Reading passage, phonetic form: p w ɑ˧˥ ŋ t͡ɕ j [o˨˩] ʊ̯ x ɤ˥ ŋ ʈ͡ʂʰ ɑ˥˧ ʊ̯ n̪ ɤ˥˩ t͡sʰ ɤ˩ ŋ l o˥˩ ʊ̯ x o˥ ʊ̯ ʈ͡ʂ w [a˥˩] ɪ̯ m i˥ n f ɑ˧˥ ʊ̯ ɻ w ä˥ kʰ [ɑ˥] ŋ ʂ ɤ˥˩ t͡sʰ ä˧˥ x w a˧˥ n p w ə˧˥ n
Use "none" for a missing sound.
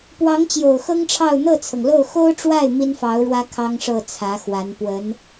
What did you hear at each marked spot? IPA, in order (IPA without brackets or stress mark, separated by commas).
o˨˩, a˥˩, ɑ˥